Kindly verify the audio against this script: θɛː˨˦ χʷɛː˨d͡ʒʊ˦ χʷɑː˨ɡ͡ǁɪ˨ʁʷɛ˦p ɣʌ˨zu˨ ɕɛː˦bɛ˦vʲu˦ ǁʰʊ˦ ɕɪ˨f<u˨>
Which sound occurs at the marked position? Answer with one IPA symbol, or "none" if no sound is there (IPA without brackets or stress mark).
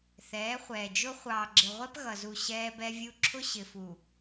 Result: u˨